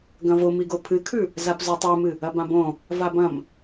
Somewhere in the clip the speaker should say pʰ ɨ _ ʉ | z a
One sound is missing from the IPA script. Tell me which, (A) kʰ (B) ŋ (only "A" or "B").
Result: A